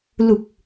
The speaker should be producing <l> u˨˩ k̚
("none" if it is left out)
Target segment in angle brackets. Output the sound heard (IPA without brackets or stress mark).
l